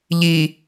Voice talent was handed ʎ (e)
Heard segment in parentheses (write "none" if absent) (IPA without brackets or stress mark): i